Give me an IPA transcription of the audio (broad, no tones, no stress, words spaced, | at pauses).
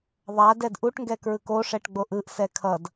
ðˤa dɛdʔuʈŋɡɛ kɹɯkoʂɛʈ ɡ͡boʔɯʔsɛ kʰʌd